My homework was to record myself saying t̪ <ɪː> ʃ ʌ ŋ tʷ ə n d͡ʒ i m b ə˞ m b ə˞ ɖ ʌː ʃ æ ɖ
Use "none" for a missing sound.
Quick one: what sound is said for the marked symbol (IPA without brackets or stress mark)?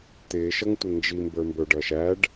ɪː